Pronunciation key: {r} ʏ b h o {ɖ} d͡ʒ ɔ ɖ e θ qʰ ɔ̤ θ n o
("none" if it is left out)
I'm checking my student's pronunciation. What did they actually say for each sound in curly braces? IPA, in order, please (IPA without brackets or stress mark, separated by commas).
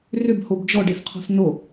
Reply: r, b